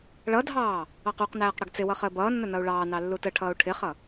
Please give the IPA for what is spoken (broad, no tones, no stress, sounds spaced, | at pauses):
ɭ ʌ dʱ ɑː | ɑ q u q n æː q ɽ ə ɡ t͡s ɪ w ʌ χ əː b ʌː nː ə n ʌ u̯ ɭ ɑː n ɑ lː u t ə ʈʰ ʌː u̯ ʈʰ ɪ χ ʌ